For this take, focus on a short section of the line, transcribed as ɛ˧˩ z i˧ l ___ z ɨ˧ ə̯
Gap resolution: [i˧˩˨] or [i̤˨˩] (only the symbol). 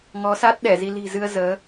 i̤˨˩